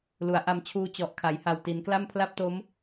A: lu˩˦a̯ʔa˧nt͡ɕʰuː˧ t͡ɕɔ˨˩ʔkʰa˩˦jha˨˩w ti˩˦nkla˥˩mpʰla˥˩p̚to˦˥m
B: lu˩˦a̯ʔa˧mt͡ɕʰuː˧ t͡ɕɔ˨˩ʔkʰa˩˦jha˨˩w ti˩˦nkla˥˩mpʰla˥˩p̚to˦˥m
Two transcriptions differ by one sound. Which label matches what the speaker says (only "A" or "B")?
B